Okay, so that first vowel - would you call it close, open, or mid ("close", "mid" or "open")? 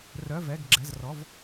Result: mid